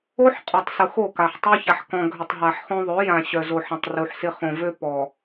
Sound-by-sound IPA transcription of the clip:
o˦ ħ qʼ ø˨ tˤ s ʊ˨ x o˦˨ k a˨ ħ tˤ u˦ ç a˨ ħ k ɔ̃˨ ɡʱ ʏ˨ tˤ ɦ a˨ ħ χ õ˦ ðˤ ø˨˦ j ã˨ ɕ œ˨ z o˨ ħ ɐ̃˨ tˤ r u˨ ħ s ɪ˦ χ õ˨ v ø˦ p ɔ˨

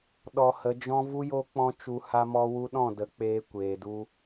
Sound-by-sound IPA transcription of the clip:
ɗ ɔ˧ h ə˨˦ d͡ʒ ɔ̃˦ v u˦ j o˦ k͡p ɔ̃˦ t͡ʃ u˧ h a˧ m ɔ˧ w u˧ ɗ ɔ̃˦˨ d ə˨˦ k͡p eː˧ kʷ eː˨ d u˧

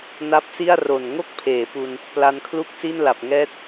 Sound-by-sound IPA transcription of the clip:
n a˦˥ p̚ s i˥˩ a̯ r o˨˩ n ŋ o˥˩ k̚ pʰ eː˩˦ p u˧ n | p l a˧ n kʰ l u˥˩ k̚ s i˥˩ n l a˨˩ p̚ ŋ ɛː˦˥ t̚

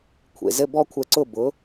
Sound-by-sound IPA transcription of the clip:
kʷʰ ḛ˨ z ɘ˦ b ɔ˦ kʷʰ ɛ˧ ǀ ʊ˦˨ b ʊ˨˦

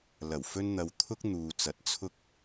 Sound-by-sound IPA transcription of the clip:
l ɐ˨˩ w f ɵ˧ n n̪ ɐ˨ w t̪ʰ ʊ˥ k̚ n̪ uː˨ t͡s ɐ˨˥ t̚ t͡sʰ ʊ˧ k̚

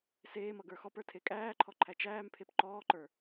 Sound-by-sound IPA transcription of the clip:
s eː m ʌ ɡ ə˞ x ɔ p ə˞ tʰ e kʼ æː ǃʰ ɔ ǃʰ æ t͡ʃ æː m pʰ e p ǃ ɔː ǃ ə˞

